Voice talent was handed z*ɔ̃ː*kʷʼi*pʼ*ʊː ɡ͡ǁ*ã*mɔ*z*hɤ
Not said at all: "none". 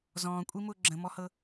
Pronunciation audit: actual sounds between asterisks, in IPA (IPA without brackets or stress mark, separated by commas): ɔ̃ː, m, ə̃, none